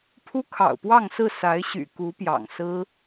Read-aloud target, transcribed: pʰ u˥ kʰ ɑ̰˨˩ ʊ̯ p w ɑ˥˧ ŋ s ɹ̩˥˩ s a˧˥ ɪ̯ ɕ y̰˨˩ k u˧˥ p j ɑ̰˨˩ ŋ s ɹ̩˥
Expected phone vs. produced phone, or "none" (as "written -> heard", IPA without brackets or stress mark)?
none